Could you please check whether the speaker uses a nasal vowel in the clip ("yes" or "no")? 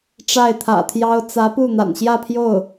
no